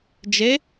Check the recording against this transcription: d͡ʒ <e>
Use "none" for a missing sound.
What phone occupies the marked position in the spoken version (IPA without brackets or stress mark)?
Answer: e